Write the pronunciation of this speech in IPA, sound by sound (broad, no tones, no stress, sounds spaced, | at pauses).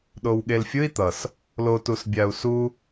ɗ o w ɠ e l fʲ ɯ i̯ t̪ ʌ s | l o t u s bʲ a u̯ s u